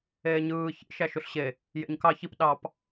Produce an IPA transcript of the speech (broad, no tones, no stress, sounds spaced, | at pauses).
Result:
eː ɲ ɯː ç ḭ ʃ æ ʃ u ɬ ɕ e | j ḛ ɲ k ɑ ç i p ɗ ɑ p